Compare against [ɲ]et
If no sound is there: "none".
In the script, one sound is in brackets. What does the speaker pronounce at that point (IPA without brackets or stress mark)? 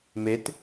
m